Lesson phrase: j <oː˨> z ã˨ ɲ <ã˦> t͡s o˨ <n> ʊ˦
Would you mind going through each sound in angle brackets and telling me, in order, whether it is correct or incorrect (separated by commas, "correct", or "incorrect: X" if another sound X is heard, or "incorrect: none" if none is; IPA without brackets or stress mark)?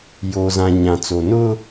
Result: correct, incorrect: ã˨, correct